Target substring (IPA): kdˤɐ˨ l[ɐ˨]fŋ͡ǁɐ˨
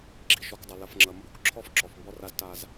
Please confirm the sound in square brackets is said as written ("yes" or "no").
yes